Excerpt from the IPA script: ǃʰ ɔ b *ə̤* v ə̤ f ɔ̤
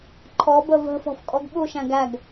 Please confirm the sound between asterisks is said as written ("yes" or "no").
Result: no